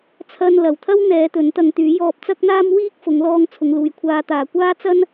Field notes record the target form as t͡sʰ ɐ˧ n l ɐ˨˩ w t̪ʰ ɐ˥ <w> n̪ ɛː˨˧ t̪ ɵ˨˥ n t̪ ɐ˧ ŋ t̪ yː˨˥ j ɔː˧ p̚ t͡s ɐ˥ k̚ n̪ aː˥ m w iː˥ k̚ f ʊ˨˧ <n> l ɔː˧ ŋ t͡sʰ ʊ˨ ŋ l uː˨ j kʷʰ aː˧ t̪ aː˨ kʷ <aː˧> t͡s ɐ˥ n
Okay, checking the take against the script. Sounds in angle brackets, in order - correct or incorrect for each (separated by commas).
correct, incorrect, incorrect